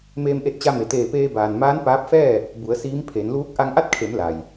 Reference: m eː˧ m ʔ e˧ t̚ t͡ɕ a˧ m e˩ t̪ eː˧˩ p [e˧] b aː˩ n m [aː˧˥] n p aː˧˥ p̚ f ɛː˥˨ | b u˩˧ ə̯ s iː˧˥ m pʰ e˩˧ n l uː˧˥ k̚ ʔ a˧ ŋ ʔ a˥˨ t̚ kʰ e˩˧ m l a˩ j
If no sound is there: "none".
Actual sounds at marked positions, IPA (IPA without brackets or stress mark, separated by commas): eː˧, aː˧˥